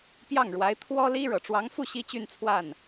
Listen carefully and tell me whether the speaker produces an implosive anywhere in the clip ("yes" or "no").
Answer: no